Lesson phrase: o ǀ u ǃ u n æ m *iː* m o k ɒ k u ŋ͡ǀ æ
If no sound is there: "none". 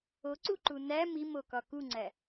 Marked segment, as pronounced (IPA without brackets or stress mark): i